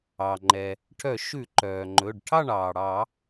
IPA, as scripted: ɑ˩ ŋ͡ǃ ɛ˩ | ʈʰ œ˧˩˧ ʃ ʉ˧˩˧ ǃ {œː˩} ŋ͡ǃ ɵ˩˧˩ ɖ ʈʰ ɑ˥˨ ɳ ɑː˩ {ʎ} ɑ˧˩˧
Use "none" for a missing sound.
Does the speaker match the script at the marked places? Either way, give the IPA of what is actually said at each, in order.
œː˩, ɽ

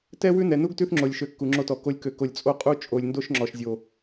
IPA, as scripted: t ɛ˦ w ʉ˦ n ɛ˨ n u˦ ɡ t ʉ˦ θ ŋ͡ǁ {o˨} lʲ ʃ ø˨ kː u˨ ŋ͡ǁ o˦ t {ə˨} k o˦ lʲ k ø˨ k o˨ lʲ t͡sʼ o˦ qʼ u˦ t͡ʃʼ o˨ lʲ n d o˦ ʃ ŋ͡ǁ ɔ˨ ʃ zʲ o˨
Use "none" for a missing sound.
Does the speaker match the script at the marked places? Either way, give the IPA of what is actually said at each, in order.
o˨, ɔ˨

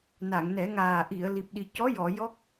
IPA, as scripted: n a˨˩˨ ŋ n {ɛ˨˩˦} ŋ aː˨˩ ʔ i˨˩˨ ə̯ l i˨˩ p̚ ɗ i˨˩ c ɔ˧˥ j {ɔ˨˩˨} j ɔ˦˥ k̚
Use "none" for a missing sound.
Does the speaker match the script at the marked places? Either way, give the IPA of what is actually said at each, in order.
ɛ˨˩˦, ɔ˨˩˨

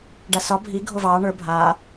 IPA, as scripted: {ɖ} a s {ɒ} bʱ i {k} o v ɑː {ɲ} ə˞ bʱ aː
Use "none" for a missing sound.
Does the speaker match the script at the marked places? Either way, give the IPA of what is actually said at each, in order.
ɖ, ɒ, ɡʱ, ɳ

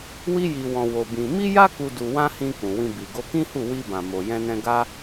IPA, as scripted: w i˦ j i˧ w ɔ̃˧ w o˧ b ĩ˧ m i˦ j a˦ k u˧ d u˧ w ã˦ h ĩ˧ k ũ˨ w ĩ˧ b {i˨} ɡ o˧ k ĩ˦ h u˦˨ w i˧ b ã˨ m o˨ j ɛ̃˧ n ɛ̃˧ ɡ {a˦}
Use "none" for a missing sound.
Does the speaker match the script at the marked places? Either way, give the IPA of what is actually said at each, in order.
i˨, a˦

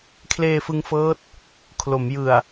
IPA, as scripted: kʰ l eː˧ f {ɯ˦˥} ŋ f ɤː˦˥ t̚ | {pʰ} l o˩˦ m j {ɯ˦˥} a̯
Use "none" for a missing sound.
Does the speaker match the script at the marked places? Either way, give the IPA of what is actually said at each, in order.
ɯ˧, kʰ, ɯ˨˩

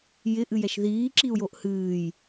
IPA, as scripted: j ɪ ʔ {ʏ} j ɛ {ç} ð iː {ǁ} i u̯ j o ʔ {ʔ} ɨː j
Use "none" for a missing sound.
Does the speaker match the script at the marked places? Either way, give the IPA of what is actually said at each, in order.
ɨ, ʃ, ǁ, h

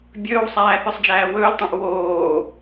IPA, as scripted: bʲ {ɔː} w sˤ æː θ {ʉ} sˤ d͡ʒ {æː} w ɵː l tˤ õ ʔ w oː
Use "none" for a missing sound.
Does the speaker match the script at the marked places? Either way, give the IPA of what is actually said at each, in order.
ɵː, ʉ, æː

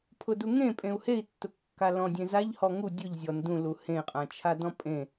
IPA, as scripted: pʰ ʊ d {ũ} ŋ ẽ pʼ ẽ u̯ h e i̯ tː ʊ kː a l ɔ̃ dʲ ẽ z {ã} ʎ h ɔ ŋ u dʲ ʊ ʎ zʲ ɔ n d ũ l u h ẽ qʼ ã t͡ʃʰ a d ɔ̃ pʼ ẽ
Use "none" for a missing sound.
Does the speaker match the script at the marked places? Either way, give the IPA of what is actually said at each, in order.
u, a

